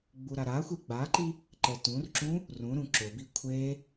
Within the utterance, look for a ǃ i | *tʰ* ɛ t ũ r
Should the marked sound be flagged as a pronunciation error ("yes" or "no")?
yes